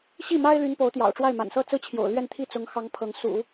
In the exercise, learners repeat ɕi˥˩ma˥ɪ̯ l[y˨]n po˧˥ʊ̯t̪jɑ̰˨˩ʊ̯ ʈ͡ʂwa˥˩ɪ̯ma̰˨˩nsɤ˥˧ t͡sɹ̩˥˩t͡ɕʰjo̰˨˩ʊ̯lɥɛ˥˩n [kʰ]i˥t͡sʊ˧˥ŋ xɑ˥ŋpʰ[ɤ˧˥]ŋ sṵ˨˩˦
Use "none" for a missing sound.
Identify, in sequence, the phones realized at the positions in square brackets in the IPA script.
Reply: y˧˥, t̪ʰ, ɤ˧˥

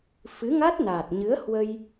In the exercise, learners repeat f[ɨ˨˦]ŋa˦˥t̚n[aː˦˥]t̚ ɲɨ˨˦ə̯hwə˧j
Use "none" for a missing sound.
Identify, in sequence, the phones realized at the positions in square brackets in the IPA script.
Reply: ɨ˨˦, aː˨˩

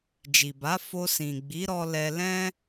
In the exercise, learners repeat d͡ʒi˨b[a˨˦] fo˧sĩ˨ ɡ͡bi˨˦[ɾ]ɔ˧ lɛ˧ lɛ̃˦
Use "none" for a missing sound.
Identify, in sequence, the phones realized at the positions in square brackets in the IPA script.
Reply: a˨˦, ɾ

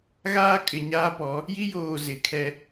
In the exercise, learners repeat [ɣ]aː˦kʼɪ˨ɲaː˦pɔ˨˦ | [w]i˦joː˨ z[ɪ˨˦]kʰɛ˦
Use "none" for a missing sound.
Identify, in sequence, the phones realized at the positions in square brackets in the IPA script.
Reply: ɣ, j, ɪ˨˦

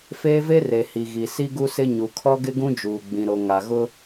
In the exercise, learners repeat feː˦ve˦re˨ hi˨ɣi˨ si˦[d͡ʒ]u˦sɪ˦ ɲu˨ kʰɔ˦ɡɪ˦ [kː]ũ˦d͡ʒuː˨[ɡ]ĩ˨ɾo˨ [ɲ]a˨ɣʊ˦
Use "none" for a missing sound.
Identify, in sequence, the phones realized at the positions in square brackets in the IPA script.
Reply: ɡ, ɡ, ɡ͡b, ŋ

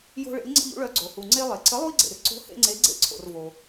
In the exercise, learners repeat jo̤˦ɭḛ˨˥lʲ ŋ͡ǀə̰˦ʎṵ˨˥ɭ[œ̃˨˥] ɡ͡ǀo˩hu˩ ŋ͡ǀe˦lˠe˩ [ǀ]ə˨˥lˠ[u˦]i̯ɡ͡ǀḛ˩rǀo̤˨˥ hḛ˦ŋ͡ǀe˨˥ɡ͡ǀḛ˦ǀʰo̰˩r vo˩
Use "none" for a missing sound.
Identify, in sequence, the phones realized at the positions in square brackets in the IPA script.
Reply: œ˨˥, ǀ, u˦

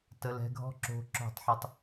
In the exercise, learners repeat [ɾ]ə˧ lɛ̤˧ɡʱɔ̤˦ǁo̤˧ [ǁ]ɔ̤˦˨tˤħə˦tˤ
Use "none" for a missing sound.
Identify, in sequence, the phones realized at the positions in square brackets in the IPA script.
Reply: t, ǁ

